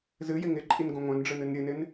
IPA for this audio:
z ɨ j ɪ ŋ ɪ ǃʼ i n ɡ õ ŋʷ œ̃ n ɖ͡ʐ ɨ n ɨ n ɾʲ ɨ n ɪ n

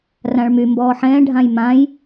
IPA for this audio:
r ã ɭ m y m b ɔː ħ ɛ̃ː ɖʱ ã j m ã j

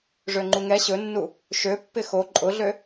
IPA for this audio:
ʐ ø ŋ͡ǃ u ŋ ɛ ɕ ɵ nː u | ʃ ø pː ɪ x o ǃʼ ʊ ɮ ø

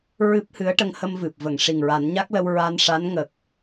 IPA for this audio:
ɹ ɨ˦˥ p̚ h ɨ˧˥ ə̯ ʈ ə˧ ŋ h ə˧ m v ɨ˨˩ p̚ v ə˨˩˨ ŋ ʂ i˨˩ ŋ ɹ a˨˩˦ n ɲ a˦˥ k̚ l ə˧ w ɹ a˧ n ʂ a˧˥ n ŋ ə˨˩ k̚

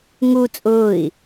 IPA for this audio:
ŋ u t͡sʼ ʊː i̯

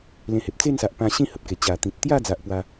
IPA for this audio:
l ẽ˧ h e˨ p̚ t͡s e˥˧ n s a˨ ʔ p ã˧ ɕ ĩ˥˧ h ə˨ p̚ k e˨˩ t͡ɕ a˨˩ t̪ ĩ˨ t̚ t̪ j a˥˧ d͡z a˦ ʔ p w a˦

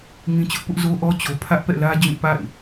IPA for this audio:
ŋ ĩ˦ t͡ɕ ʊ˦ ʔ p ʊ˦ ʔ z o˦ ʔ ɔ˦ t͡ɕ o˨ pʰ ä˦ ʔ p ɛ̰˦˨ l ä˦ d͡ʑ ũ˦˨ p a̰˦˨ ɪ̯

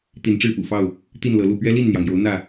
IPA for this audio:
t̪ i˨˦ n ʈ͡ʂ ɻ̩˥˨ p ṵ˨˩ f ɑ˥˨ ʊ̯ | t̪ i˥˨ n l ɤ˨˦ l u˥˨ p ɥ ɛ˦ l i˥˨ n n̪ j ɑ˩ ŋ j o˨˦ ʊ̯ n̪ ä˥˨

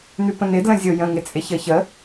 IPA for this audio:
n̪ ʉ p ə̃ n̪ ɪ d l ə̃ zʲ o j ə̃ ŋ ɪ t͡sʼ ɪ ç ə ç ə

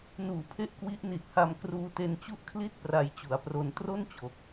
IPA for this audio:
n uː˩˦ pʰ e˦˥ ʔ k w i˦˥ ʔ n i˨˩ t̚ h a˧ m k r uː˧ t e˧ n t͡ɕ u˥˩ ʔ kʰ l i˥˩ t̚ p r a˧ j t͡ɕ u˩˦ a̯ p r o˧ n t r o˥˩ n t͡ɕ o˨˩ k̚

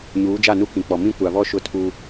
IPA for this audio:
ɲ uː˨˦ d͡ʒ a˦˨ n u˦ k ĩ˨ k͡p ɔ˨ m ĩ˦ kʷ a˨ β ɔ˦ ʃ ʊ˦ tʰ u˦

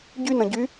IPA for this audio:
ɟ y n ə̃ ɟ y

